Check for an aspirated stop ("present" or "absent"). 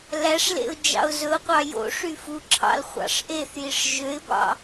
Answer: present